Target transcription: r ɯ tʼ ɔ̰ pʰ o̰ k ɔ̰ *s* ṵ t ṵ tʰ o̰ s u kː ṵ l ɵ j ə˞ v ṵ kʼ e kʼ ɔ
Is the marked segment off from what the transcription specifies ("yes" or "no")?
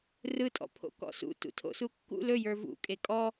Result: no